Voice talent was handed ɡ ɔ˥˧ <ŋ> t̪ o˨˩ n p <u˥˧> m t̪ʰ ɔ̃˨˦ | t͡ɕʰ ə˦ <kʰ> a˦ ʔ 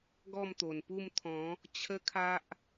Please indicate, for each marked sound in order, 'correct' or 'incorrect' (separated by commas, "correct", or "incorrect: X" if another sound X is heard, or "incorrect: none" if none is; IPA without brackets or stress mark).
incorrect: m, correct, correct